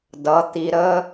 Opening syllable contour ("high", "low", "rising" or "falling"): rising